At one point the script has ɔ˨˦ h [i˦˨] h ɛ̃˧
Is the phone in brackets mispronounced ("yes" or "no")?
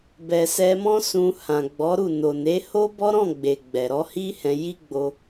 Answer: yes